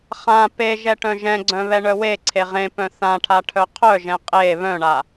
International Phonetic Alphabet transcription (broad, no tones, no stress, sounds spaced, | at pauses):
χ ã p e ʒ ɛ ʈ œ̃ ʒ ɛ̃ ɡ͡ǀ œ̃ β ɛ ɳ œ w e ǀʰ e ʁ ẽ p œ̃ θ ã ʈʰ a ʈʰ œ qʰ œ ʒ ɛ̃ qʼ e β œ̃ ɳ a